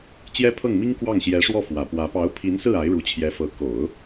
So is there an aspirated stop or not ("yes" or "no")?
yes